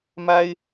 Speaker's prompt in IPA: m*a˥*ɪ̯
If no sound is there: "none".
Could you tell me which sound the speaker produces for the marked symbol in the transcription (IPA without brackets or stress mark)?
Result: a˥